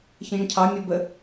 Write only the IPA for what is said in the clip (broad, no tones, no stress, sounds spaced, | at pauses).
ç ə̃ ʒ ə̃ cʰ ɑ mʲ ʊ b ə